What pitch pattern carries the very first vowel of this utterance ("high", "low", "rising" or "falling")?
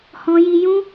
high